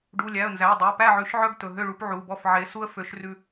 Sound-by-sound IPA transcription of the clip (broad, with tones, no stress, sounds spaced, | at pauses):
ɖ u˩˧˩ lʲ æ˩˧˩ ə̯ n z æ˩˧˩ ə̯ dˤ ɵ˩˧˩ ə̯ p æ˥˨ ʕ ʉ˨˦ ʃ ʕ œ˦ ɡ t ɵ˩˧˩ ɦ ø˥˨ ɭ u˦ p ʕ u˩˧˩ b ɔ˥˨ f ʕ e˨˦ s u˦ ə̯ f ø˨˦ ʃ r ʉ˦